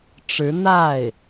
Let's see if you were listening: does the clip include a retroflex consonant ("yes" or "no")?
yes